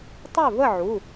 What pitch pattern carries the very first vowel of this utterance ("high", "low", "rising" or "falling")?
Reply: falling